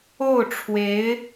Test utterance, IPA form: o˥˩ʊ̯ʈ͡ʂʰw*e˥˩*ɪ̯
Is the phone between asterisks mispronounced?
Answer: yes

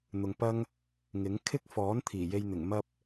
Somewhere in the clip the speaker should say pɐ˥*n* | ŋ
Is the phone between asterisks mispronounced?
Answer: yes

